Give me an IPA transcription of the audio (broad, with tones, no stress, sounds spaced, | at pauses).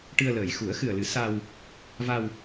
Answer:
ʈ ɨ˧ ə̯ l əː˨˩ j x u˨˩˦ ə̯ x ɨ˨˩ ə̯ l ɨ˨˩˦ s a˧ w | v a˧ w